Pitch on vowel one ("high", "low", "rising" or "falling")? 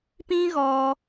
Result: high